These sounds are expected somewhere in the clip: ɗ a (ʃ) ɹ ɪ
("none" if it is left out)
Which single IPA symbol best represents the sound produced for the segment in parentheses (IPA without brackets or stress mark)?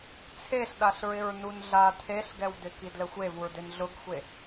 ɬ